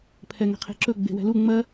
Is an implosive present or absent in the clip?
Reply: absent